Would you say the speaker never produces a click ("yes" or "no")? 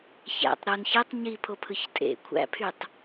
yes